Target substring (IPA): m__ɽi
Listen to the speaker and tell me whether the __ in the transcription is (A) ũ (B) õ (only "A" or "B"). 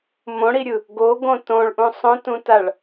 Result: B